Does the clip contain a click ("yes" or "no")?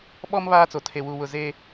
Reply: no